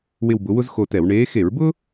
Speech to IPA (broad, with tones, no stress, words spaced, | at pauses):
wɪ˦˨wbʊ˨˦wʊ˥z xo˦˨tɛ˧˩˧w ɳeː˨˦xe˧˩˧ɹbʊ˥